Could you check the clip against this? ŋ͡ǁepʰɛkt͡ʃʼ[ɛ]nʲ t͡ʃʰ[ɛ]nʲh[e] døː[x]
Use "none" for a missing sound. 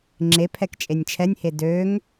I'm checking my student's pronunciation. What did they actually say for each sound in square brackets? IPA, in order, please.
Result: e, ɛ, e, ŋ

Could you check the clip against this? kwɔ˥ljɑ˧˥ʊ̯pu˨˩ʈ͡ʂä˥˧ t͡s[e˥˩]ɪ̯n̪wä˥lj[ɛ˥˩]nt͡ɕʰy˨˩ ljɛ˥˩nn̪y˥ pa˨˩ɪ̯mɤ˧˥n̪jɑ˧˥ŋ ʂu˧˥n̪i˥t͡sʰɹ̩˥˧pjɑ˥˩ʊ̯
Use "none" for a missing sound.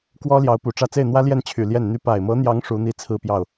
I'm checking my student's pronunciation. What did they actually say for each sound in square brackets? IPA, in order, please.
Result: e˥˩, ɛ˥˩

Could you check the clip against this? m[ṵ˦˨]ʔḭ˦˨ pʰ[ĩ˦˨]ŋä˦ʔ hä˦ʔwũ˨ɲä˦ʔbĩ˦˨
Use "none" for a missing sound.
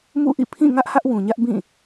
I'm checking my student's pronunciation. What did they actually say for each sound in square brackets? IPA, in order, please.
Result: ṵ˦˨, ĩ˦˨

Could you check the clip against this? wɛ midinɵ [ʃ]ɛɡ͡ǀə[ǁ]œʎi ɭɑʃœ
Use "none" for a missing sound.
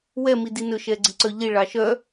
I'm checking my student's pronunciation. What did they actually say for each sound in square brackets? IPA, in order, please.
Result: ʃ, ǀ

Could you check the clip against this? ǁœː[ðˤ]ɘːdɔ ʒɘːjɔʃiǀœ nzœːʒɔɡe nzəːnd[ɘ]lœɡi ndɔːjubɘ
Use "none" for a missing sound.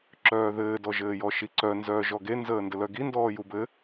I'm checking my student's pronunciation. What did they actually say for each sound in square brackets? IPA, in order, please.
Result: ð, ɘ

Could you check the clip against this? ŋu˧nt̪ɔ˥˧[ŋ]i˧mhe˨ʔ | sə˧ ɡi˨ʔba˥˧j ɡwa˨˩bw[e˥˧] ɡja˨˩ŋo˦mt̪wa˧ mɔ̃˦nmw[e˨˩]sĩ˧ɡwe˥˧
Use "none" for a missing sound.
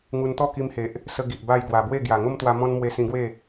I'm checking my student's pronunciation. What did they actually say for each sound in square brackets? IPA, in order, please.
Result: k, e˥˧, e˧

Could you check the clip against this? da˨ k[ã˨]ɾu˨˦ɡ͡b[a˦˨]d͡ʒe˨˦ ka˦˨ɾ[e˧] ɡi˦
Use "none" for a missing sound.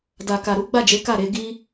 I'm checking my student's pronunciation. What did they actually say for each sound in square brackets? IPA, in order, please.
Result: a˨, a˦˨, e˧

